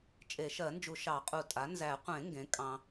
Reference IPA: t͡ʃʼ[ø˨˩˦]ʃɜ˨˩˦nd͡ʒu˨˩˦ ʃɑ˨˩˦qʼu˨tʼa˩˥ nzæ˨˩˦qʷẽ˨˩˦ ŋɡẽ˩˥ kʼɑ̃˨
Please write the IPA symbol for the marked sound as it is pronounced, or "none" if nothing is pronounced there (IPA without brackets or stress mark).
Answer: e˨˩˦